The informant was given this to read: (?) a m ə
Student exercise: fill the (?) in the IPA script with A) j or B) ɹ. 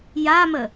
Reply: A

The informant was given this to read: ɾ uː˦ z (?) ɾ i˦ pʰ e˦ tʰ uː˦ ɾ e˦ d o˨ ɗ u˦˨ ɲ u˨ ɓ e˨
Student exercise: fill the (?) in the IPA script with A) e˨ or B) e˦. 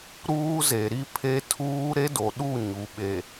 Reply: A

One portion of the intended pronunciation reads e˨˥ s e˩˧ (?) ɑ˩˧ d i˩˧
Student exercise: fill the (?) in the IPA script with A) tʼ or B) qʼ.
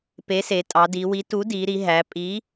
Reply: A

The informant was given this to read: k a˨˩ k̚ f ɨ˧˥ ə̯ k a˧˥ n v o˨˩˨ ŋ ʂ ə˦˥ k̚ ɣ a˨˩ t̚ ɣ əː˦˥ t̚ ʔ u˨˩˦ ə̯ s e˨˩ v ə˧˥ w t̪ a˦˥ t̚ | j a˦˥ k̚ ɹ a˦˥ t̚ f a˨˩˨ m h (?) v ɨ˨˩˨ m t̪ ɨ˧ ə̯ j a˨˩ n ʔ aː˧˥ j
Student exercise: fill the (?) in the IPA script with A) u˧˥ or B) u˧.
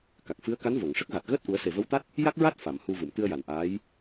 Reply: B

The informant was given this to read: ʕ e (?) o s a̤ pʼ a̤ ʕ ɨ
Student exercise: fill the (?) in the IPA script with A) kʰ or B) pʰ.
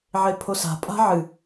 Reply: B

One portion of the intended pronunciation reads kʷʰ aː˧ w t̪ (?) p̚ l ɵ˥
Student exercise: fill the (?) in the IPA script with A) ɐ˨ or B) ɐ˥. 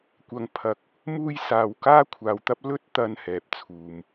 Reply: B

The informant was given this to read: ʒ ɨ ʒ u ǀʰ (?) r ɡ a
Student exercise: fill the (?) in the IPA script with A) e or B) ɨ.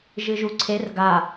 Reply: A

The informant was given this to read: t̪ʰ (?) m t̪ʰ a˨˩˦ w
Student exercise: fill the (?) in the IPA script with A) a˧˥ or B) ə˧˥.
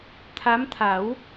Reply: A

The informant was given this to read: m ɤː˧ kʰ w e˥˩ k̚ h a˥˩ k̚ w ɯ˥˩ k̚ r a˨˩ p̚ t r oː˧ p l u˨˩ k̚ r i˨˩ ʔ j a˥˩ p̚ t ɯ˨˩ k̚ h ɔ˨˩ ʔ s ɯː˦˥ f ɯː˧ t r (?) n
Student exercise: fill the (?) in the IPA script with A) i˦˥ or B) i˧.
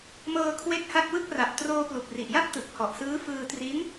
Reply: A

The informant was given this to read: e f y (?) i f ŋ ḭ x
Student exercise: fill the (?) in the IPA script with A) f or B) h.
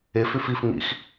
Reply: A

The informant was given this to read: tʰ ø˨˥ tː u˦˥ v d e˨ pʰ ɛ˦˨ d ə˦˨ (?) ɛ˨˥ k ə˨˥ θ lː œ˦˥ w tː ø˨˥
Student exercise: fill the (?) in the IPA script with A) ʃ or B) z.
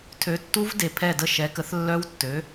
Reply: A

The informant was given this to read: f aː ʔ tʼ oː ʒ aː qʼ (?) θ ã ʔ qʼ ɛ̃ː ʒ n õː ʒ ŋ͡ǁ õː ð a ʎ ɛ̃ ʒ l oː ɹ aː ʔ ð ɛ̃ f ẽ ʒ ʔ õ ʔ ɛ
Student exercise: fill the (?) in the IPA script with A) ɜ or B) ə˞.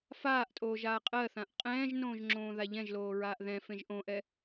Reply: A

